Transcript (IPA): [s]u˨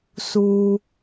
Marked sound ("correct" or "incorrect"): correct